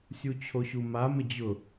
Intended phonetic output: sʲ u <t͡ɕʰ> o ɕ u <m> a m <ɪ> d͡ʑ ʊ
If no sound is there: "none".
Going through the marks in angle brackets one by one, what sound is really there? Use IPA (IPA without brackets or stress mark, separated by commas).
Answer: t͡ɕʰ, m, ɪ